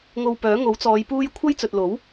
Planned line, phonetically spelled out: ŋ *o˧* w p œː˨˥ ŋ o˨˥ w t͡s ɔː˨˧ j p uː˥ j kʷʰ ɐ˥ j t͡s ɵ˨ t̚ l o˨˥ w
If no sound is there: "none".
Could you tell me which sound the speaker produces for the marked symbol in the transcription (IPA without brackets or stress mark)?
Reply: o˧